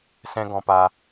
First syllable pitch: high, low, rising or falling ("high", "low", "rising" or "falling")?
high